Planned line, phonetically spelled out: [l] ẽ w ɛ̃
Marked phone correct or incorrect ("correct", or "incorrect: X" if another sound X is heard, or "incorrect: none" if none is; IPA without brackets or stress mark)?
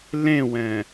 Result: correct